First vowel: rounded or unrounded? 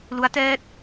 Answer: rounded